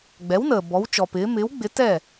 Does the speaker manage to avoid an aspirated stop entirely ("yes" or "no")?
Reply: yes